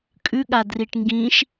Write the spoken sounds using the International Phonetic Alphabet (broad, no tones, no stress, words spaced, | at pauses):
kʼʉɠa driʈŋɡĩʃ